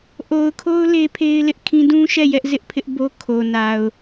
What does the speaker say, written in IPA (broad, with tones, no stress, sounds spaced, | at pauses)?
ʔ o˨ ʊ̯ kʰ o˦ ʊ̯ l e˦ pʰ e˦ ɪ̯ l ɪ˦ ʔ kʰ ĩ˦ d ũ˦ ʃ ɛ˦˨ j ɛ˦ ʔ z ɪ˦ ʔ pʰ ɪ˦ ʔ b o˦ kʰ o˨ n a˨ ʊ̯